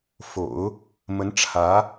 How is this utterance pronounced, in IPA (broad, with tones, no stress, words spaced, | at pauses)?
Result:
fo̰˨˩˦ʊ̯ | mə˧˥nʈ͡ʂʰä˧˥